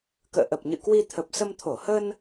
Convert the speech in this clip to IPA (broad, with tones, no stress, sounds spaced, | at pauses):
k ə̰ː˧˨ ʔ ə˨˩ p̚ ɲ ɨ̰˧˨ k w i˧ t̪ʰ ə˨˩ p̚ s ə˧ m t̪ʰ o˧˩ h ə˧ n